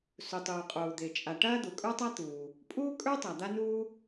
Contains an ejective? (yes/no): yes